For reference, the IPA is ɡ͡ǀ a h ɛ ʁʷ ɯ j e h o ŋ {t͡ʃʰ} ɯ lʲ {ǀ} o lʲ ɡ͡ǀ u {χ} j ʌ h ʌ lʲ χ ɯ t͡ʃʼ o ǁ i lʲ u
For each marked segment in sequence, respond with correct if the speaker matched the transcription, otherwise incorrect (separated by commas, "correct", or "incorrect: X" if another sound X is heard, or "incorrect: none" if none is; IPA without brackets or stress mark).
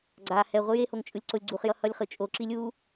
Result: incorrect: t͡ʃʼ, correct, correct